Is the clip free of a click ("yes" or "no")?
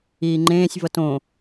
no